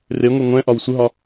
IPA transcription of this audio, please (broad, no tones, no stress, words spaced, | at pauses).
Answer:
reŋʷe ŋʷɛ̃ ʔɒwsʷəɦɒ